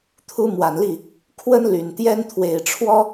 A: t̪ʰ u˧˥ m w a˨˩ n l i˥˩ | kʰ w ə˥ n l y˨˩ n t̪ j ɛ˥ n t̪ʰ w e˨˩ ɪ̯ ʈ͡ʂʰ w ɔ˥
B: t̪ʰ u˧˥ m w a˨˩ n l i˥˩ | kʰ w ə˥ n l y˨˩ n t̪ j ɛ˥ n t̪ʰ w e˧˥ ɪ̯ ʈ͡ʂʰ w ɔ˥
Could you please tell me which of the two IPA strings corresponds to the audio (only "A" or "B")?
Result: A